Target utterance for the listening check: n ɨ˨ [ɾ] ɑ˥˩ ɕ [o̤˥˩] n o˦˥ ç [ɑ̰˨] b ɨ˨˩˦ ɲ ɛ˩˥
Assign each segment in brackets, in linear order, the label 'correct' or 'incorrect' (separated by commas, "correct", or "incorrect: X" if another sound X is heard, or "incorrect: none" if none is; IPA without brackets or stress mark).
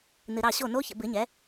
correct, incorrect: o˥˩, incorrect: ə̰˨